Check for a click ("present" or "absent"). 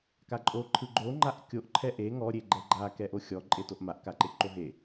present